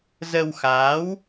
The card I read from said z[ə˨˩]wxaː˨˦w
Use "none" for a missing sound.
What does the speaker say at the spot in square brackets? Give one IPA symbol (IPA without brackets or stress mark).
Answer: ə˧